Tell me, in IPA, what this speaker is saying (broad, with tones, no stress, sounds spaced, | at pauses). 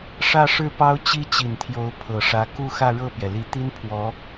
ʂ ä˥˧ ʂ ɻ̩˥˩ p ɑ˥ ʊ̯ t͡ɕ i˥ t͡ɕ i˨˩ n t̪ʰ j o˧˥ ʊ̯ pʰ ɤ˨˩ ʂ ä˧˥ k u˥˧ x ä˥˧ ɻ ɤ˥˩ p j ɛ˩ l i˨˩ t̪ i˥ n pʰ w ɔ˧˥